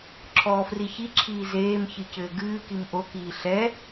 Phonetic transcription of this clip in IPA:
ǁʰɔːfriçiǁʰiː zeːmçɨ cɘːɡɨːkim ʔokiː ɬɛ

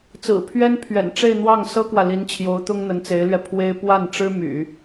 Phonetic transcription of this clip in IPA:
t͡sɹ̩˨˩ pʰɥɛ˥n pʰɥɛ̰˨˩nʈ͡ʂe˥˧ɪ̯n̪wɑ˥˩ŋ sɤ˥kwä˨li˧˥nt͡ɕʰjo˧˥ʊ̯ t̪ʊ˥ŋn̪ə˧˥nt͡se˧˥ɪ̯lɥɛ˧ pʰwe˥ɪ̯ pwa˥˩n ʈ͡ʂɻ̩˥my̰˨˩˦

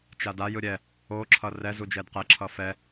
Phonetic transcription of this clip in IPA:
t͡ʃada jɯɾʲɛ | o ǁʰʌrɛ zud͡ʒɛdqɛ ǁʰʌfɛ

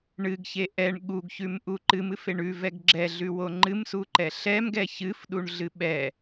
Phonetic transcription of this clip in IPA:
ɳɨɡçe ʔɛɳ ɠuɡçʉmʔu ǃɨmɨfe ɳʉvɛɡ ɡ͡ǁɛɮʉwo ŋ͡ǃɨmsuǃɛ ɬɛmɡɛ çɨfɗuɳɮɨ ɓɛ

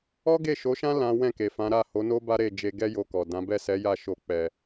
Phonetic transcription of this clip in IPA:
ɔ˦ɡe˦˨ʃo˨˦ʃã˦ lã˦ wɛ̃˦˨ke˨fã˨˦ɾa˦˨ ho˨˦no˦ ba˦ɾe˦˨ d͡ʒe˧ɡɛ˦ jo˧kɔ˨dã˨˦ bɛ˦˨sɛ˨˦ja˦˨ ʃo˧k͡pɛ˨

